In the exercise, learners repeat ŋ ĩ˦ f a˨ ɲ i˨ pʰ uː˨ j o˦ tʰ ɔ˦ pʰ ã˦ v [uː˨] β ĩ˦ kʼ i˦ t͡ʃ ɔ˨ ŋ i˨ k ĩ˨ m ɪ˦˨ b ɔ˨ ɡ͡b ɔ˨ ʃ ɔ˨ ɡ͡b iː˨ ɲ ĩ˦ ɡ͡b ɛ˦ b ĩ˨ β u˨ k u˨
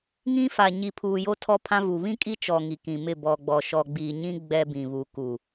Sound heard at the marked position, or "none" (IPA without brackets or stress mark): u˨